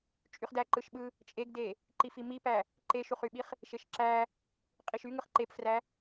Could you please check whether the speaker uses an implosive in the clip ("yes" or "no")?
yes